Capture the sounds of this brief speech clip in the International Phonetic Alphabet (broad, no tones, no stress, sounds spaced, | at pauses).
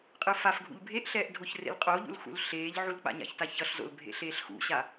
qʼ ɯ f a f ɡʱ ṵ ʎ bʱ e ʔ ɬ ɛː ʔ dʱ o ç r ḛ l qʼ o ʎ ṵ l x ṵ l ɬ eː ʎ ʕ u l k͡p a̰ ɲ a̰ ç t a ç ʌ ɬ z o̰ l bʱ ḛ ɬ eː ɬ x ṵ ɕ a